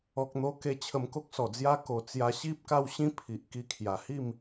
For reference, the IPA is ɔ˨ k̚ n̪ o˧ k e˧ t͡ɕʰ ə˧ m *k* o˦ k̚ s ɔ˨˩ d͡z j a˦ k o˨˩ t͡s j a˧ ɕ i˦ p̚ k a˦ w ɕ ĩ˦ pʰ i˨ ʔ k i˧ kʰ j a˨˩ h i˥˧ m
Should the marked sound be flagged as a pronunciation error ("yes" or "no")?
no